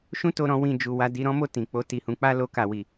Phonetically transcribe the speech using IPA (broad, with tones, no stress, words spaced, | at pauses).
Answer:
ʃũ˦ to˦ɾɔ̃˦wĩ˦˨ d͡ʒu˨wa˧ di˧ɾɔ̃˦mo˦˨ tĩ˨k͡po˧ ti˨hũ˨˦k͡pa˦ lo˧ka˨wi˨